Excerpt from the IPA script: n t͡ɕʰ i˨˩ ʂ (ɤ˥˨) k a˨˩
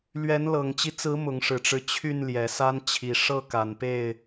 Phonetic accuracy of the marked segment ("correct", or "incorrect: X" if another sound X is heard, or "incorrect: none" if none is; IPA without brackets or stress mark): correct